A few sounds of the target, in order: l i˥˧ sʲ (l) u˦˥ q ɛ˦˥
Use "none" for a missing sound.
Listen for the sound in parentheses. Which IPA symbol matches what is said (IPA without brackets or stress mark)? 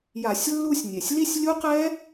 lʲ